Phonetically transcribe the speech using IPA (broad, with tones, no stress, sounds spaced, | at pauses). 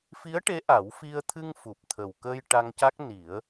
f i˧˥ ə̯ ʈ e˧˥ ʔ a˨˩˦ w f i˧ ə̯ t̪ʰ ɨ˧ ŋ f u˨˩ p̚ t̪ʰ ə˨˩ w k ə˧ j ʈ a˧ ŋ c a˦˥ k̚ n i˨˩˦ ə̯